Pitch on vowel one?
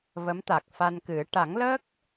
rising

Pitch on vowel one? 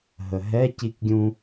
low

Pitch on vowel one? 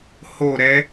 falling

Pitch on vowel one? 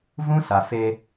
high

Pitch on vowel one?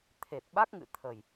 low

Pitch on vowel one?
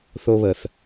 high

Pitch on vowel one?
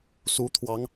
rising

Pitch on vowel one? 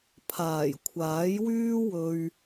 low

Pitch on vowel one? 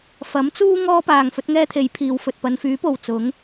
rising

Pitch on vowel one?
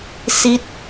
falling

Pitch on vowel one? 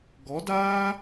rising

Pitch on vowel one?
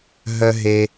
high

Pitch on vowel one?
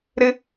high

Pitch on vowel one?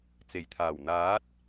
low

